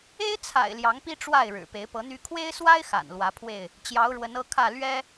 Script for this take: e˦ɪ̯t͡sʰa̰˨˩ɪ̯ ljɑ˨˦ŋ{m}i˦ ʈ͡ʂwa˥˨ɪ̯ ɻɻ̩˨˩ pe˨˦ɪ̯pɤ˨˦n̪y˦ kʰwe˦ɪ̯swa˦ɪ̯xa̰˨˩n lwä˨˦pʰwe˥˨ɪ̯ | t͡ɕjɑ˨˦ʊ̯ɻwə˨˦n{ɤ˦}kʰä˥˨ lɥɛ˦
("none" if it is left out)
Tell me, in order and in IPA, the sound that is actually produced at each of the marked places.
p, ɤ˦

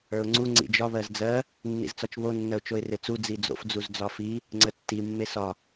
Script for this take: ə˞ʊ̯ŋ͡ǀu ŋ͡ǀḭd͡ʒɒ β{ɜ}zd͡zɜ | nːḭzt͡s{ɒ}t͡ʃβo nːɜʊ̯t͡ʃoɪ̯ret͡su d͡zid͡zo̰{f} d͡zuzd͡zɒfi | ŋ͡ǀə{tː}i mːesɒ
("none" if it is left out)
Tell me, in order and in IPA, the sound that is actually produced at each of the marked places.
ɜ, ɒ, f, tː

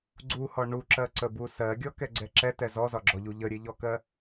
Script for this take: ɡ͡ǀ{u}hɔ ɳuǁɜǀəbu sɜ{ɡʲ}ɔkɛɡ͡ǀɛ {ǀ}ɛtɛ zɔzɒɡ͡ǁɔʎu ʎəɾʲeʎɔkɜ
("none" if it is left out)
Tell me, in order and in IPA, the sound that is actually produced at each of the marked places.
u, ɡʲ, ǁ

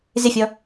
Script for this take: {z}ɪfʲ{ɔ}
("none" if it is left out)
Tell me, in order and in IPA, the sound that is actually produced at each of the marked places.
z, ɔ

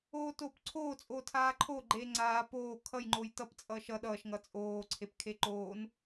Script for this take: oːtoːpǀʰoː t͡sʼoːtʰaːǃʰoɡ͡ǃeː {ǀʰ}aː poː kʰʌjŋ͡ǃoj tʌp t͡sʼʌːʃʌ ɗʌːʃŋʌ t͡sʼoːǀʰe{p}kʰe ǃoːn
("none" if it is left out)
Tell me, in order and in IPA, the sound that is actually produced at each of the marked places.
ŋ͡ǀ, p

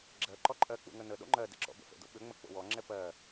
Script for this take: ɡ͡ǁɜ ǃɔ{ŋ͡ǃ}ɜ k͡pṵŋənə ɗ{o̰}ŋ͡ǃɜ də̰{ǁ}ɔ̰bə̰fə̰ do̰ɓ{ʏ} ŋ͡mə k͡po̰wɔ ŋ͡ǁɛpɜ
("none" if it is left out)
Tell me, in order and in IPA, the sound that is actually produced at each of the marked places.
ǃʼ, o̰, ǁ, ʏ

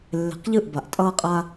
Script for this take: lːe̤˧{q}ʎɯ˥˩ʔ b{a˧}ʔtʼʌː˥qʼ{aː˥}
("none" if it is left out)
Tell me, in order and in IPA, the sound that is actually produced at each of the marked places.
q, a˧, aː˥

